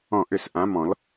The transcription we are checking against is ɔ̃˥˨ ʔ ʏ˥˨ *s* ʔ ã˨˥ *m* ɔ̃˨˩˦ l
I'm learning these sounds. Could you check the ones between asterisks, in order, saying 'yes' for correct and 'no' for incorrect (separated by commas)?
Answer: yes, yes